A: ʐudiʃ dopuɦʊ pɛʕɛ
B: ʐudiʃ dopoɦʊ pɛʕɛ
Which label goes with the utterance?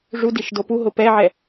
A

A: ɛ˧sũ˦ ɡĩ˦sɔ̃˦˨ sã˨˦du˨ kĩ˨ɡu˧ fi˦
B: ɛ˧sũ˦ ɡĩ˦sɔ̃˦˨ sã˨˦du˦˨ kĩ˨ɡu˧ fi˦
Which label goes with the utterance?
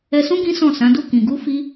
B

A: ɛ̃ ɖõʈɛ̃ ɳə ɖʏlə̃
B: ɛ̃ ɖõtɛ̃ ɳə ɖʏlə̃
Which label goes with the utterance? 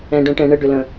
A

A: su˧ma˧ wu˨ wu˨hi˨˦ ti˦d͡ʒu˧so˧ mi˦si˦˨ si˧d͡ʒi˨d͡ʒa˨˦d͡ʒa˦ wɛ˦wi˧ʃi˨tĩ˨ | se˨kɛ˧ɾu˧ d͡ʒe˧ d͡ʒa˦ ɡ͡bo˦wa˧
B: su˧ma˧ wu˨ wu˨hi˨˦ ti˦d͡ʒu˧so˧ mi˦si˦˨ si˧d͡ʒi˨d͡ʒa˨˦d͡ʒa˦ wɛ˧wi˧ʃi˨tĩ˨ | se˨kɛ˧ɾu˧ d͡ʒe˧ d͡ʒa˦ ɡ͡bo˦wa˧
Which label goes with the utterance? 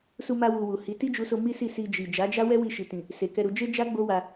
A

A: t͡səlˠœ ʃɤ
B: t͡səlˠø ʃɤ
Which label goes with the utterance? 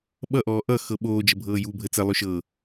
B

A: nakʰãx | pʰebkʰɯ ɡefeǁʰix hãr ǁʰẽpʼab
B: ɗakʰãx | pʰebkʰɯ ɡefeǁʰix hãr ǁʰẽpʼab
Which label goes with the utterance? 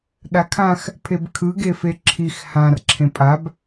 B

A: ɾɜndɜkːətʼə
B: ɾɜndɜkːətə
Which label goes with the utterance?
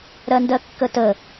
B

